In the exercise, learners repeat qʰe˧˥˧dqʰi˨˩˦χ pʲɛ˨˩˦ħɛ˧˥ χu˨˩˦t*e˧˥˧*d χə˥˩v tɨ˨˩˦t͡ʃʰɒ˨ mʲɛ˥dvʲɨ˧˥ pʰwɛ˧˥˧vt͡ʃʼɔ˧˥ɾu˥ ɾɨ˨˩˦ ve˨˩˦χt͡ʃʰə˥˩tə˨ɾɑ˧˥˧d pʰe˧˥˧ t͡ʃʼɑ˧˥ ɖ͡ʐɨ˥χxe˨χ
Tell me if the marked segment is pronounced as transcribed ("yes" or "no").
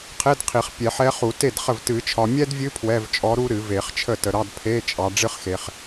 no